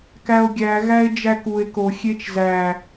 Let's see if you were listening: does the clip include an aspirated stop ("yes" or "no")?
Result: no